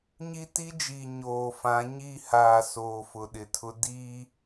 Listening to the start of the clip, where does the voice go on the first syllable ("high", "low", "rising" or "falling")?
high